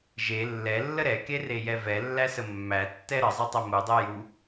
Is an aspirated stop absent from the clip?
yes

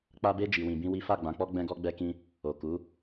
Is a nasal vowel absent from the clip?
no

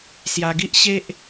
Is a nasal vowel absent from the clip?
yes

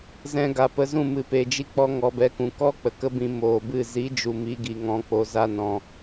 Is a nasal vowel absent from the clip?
no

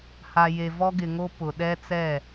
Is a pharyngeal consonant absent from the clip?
yes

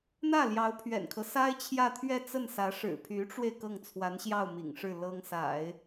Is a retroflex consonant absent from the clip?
no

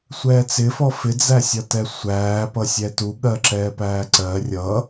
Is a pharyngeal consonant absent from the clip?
yes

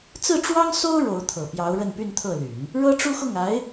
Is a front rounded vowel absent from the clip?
no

